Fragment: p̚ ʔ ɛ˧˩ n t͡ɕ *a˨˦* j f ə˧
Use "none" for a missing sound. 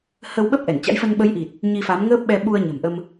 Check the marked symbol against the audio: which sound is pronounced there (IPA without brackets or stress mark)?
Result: a̰˧˥